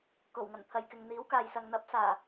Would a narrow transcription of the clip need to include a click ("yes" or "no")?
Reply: no